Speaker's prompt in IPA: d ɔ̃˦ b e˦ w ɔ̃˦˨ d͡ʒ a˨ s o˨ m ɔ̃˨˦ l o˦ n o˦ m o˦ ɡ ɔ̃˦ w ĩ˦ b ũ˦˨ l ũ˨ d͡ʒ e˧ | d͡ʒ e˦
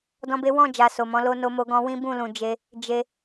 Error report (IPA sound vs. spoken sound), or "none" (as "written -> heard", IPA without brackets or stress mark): none